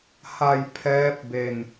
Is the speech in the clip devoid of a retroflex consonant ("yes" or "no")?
yes